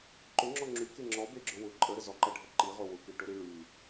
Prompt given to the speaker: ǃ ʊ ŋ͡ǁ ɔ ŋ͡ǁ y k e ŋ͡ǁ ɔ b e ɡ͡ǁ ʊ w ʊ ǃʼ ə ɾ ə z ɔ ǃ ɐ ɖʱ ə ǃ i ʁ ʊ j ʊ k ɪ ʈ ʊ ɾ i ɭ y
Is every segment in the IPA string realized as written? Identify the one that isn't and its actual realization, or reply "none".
j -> w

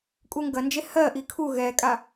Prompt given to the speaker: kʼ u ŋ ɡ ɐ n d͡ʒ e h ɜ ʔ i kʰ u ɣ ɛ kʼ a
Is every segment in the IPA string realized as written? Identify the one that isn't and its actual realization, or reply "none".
none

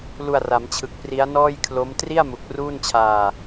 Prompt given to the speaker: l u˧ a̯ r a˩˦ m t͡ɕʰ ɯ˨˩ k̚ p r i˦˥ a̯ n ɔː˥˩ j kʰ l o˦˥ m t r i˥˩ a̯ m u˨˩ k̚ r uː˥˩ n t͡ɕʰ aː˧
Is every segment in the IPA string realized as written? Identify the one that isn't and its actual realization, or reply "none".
none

